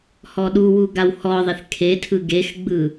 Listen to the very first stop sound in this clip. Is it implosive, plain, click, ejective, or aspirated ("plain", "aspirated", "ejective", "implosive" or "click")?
implosive